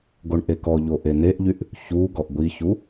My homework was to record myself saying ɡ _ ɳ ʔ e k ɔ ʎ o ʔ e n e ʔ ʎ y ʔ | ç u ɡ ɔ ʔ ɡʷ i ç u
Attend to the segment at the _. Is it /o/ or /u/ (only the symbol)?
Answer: o